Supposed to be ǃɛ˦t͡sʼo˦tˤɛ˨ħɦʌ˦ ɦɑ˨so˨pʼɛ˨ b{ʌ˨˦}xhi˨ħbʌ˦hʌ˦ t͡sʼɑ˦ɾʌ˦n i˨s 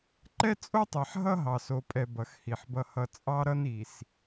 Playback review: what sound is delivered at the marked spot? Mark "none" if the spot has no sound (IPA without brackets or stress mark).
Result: ʌ˨˦